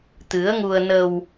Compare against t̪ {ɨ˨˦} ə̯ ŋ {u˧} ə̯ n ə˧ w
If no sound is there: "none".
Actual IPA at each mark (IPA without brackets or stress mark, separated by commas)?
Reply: ɨ˨˦, u˧